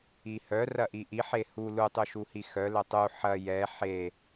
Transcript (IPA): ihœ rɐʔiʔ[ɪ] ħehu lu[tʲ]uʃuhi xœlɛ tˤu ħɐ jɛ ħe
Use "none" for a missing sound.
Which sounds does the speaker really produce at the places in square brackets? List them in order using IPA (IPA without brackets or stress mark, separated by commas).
i, tˤ